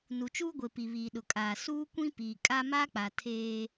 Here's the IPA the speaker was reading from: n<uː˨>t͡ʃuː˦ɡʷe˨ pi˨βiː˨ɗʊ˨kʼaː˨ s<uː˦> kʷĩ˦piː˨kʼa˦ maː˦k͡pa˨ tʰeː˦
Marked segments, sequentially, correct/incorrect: incorrect: u˨, correct

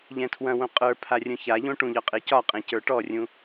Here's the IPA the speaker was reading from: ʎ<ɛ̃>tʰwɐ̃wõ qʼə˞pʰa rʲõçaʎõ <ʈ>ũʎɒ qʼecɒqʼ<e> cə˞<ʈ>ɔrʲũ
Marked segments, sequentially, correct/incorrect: correct, correct, incorrect: ẽ, correct

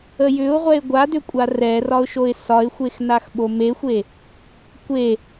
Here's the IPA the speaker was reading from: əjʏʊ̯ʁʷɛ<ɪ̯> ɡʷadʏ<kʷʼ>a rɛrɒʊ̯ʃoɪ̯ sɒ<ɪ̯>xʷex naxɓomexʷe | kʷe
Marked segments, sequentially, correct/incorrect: correct, correct, correct

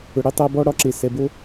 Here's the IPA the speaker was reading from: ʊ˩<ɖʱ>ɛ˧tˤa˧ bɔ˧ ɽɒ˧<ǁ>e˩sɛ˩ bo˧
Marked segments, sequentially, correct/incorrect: incorrect: ɽ, correct

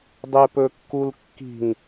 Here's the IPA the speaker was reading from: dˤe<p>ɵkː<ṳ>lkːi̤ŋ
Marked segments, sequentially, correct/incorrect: correct, incorrect: u

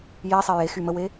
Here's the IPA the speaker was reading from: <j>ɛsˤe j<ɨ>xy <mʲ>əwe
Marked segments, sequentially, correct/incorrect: correct, incorrect: e, incorrect: m

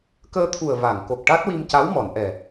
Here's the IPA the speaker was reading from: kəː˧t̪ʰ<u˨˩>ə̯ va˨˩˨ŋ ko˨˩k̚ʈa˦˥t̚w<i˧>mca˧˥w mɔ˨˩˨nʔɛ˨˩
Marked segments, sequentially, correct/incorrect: correct, correct

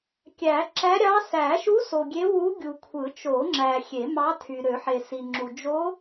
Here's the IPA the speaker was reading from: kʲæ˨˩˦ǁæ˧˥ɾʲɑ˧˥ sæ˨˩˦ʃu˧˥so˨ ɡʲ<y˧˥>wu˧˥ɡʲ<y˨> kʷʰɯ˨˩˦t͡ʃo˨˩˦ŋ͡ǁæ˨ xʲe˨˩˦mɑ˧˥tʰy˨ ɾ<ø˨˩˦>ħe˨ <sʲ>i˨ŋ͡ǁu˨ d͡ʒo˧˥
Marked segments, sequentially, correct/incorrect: incorrect: e˧˥, incorrect: u˨, correct, incorrect: s

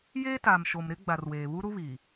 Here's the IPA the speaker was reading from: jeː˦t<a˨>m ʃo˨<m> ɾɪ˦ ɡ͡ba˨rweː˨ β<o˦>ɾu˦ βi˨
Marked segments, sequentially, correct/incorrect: incorrect: aː˨, correct, incorrect: u˦

